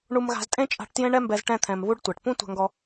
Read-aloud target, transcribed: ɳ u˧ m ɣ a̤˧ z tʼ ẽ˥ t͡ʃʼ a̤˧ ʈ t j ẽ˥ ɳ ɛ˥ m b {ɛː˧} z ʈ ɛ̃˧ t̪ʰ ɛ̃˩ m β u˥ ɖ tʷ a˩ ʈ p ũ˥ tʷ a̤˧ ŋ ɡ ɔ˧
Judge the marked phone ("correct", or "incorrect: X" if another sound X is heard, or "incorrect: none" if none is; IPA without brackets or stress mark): incorrect: ɛ˧